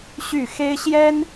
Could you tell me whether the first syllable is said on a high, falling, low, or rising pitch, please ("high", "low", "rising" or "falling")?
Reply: falling